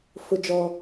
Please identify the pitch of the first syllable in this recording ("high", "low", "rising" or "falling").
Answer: high